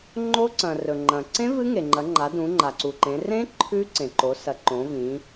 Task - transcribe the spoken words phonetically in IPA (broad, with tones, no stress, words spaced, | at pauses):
ŋ͡ǃo˦˥ǀɐ̃˩rɵ˩ ŋ͡ǃɐ̃˩ ǀẽ˦˥ vɨ˦˥ŋe˩ŋ͡ǃɐ˩˧ŋ͡ǃa˩˧ dũ˩˧ŋ͡ǃa˩ǀu˩ǃẽ˩˧ rẽ˦˥ ǃʰʉ˦˥ǀẽ˩ǃo˩˧ sɐ˩˧ǃõ˩˧vĩ˩˧